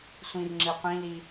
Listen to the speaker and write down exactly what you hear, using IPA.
sʷ ĩ r ŋ͡ǁ i qʷ ĩ l i

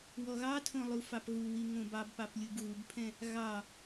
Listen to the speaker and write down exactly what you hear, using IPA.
w ɔ ɣ ɑ tʰ õ lˠ u f ɑ p ɣ u w i ŋ õ b ɑ b p ɑ p lʲ u b ɣ u b pʰ ɛ̃ | ɣ ɑ

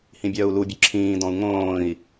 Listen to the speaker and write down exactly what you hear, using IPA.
h ĩ bʲ œː u̯ l u bʲ ɵ ǁʰ ĩː d ɔ̃ u̯ ŋ õː i̯

